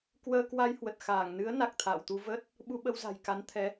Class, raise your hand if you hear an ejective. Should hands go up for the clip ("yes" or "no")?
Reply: no